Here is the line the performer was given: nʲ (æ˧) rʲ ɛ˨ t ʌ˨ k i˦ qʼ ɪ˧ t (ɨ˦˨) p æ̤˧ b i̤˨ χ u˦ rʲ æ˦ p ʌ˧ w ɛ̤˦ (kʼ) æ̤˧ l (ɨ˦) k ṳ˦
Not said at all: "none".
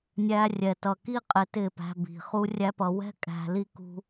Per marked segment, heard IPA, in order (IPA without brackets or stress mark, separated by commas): æ˧, ɪ˦˨, kʼ, i˦